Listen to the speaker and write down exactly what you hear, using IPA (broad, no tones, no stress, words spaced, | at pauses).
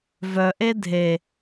vœʔe dʱe